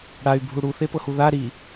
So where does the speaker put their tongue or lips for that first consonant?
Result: retroflex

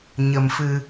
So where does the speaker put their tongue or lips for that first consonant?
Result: palate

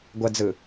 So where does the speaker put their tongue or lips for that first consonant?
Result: velum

